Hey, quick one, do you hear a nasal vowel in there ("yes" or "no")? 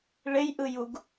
no